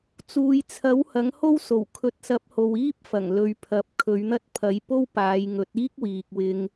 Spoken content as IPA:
t͡s uː˨ j t͡sʰ ɐ˨˥ w h ɐ˨˥ ŋ h o˥ w s o˨˩ w kʰ ɵ˨˥ t̚ s ɐ˨˥ p̚ h o˨ w iː˥ p̚ f ɐ˨˩ ŋ l ɵ˨˧ ɥ pʰ ɐ˨˥ p̚ kʰ ɵ˨˧ ɥ n̪ ɐ˥ t̚ pʰ ɐ˨˧ j p o˥ w p aː˨˧ j ŋ ɵ˨˥ t̚ iː˥ k̚ w iː˨ k̚ w ɪ˧ ŋ

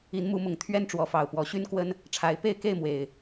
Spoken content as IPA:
i˨˦ n m u˨˦ m ʊ˨˩ ŋ t̪ʰ ɥ ɛ˦ n ʈ͡ʂ w ɔ˨˦ f ɑ˨˩ ʊ̯ p w ɔ˨˦ ɕ y˦ n k w ə˦ n | ʈ͡ʂʰ a˨˦ ɪ̯ p e˥˨ ɪ̯ k e˥˨ ɪ̯ m w e˨˩ ɪ̯

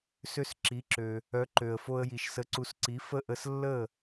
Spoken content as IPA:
s ø˧ s ǁ i˩˥ ǁ ø˩ | œ˩˥ ǃ ø˩ ə̯ f o˧ ə̯ j i˩ ʃ s ə˩˥ ǀ u˩˥ s ǀ i˩˥ f ə˥˩ ʔ ə˧ s lː ə˥˩

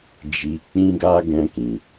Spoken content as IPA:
d͡ʒ i˧ k͡p ĩ˦ ɡ a˦ ɡ ɛ̃˧ k ĩ˨

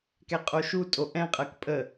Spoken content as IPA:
k ɛ qʼ o ʃ u tʼ o ʔ ɛ̃ qʼ ɜ k pʼ ə

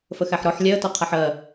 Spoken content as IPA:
f ə x æ ħ ɾ ɔ ħ lʲ ɛ ə̯ t ɔ qʰ a ħ ɜ

